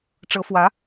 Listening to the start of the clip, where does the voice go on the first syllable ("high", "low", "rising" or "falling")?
rising